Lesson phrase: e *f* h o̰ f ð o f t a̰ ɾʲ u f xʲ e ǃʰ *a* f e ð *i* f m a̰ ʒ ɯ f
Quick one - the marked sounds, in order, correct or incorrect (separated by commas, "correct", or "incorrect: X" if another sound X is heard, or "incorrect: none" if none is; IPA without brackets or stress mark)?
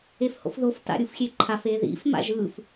correct, correct, incorrect: ḭ